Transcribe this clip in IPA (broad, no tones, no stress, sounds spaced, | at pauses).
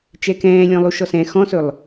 t͡ʃ ɛ k ɛ̃ː lʲ ɔ̃ lˠ u ʃ ɔ s ɛ̃ x ɔ̃ s ɵ lˠ